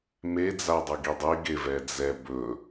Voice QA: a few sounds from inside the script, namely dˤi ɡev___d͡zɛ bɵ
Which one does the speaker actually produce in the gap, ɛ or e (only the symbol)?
ɛ